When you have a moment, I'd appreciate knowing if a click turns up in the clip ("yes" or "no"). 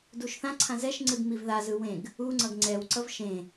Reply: yes